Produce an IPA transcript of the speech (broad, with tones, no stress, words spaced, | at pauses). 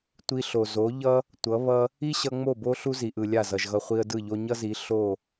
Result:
tʷi˧ɬo˨ zo˨˦ʎʌ˦ | tʷʌ˨˦ βʌ˧ | i˦ɕʌ˧ ŋ͡mo˦˨bo˦ ɬu˦zi˨ʔɯ˨ lʲa˦˨zʌ˨ʒɣʌ˧ χʷi˧ə̯dɯ˦˨ʎo˦ ɲʌ˦zi˨˦ ɬo˦˨